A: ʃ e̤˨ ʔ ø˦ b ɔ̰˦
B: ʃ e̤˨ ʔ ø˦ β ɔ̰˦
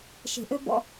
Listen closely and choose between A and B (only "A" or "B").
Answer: A